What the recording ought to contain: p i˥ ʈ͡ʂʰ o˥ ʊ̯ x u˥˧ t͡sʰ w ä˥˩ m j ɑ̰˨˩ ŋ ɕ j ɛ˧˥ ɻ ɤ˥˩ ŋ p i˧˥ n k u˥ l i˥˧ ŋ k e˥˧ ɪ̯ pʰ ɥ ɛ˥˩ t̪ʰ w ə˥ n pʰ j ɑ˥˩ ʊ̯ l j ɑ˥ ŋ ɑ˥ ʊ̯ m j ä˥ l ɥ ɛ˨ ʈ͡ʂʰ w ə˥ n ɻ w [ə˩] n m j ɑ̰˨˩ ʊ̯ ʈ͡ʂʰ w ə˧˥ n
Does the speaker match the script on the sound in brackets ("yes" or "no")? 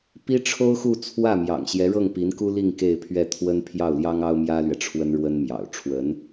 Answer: no